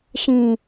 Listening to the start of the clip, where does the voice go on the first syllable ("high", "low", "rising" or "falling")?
low